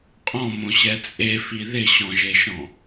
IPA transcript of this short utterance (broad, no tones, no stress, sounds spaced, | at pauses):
qʼ ɔ̃ m õ ɕ ɛ t͡sʼ e f i ð ɪ ɕ ɔ̃ ʒ e ʃ ɔ̃